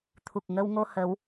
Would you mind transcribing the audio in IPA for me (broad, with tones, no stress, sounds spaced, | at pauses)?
t̪ʰ u˨˩ k̚ ŋ ə˧ w ŋ o˧ h ə˨˦ w